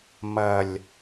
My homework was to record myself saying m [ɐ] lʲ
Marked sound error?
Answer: no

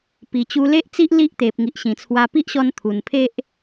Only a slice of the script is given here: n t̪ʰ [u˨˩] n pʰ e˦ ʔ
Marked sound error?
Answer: no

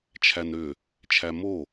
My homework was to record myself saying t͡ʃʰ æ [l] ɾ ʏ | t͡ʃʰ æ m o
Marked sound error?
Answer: yes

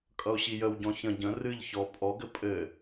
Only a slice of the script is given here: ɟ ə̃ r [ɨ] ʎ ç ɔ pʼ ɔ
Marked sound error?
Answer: no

